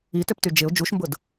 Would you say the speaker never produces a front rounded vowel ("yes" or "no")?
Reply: no